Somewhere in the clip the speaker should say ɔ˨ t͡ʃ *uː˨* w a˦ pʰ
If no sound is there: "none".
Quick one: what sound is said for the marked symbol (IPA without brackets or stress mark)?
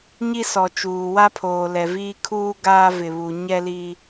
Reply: uː˨